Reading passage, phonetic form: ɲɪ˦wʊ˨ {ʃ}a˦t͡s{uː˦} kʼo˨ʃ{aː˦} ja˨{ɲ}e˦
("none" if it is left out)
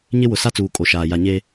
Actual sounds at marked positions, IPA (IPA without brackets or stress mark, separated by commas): s, uː˨, aː˨, ɲ